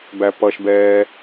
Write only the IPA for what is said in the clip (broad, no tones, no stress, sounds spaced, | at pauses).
b æ p ʌ ʃ b ɛː